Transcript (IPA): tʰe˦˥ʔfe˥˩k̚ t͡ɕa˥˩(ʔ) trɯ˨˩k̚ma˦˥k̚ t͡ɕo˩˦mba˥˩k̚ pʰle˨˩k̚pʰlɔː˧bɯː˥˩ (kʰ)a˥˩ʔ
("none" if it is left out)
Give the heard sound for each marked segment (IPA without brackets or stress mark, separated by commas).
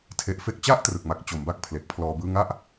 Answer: ʔ, ŋ